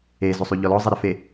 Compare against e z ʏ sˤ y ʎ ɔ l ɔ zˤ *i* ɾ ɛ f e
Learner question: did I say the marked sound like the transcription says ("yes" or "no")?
no